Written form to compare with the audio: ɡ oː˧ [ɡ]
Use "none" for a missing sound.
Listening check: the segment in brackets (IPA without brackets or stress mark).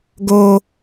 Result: none